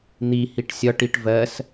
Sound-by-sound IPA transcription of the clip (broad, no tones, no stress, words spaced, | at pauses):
n̪ihiʈ sʲɒʈiʈ vɜs